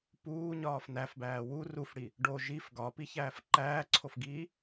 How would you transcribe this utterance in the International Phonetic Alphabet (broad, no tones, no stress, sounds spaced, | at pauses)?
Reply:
p uː ɲ ɒː f n æ f b æː w u r u f ɽ i | ɖ o ʒ i f ɡ ɒ p i ç æː f ǃ æː ǀʰ o f ɡ iː